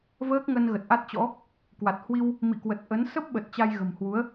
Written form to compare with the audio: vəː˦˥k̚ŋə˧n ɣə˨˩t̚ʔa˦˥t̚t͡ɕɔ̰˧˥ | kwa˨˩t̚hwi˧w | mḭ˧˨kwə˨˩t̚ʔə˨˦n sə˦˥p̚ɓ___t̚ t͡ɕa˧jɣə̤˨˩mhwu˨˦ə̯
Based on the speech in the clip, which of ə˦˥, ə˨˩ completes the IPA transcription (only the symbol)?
ə˨˩